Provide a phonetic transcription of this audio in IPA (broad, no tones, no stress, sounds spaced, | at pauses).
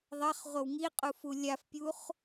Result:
ðˤ ɐ χ ʁʷ ɐ w ŋ i qʼ u f u lʲ a f pʲ u χ